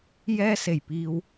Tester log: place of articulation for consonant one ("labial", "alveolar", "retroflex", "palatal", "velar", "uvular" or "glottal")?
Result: palatal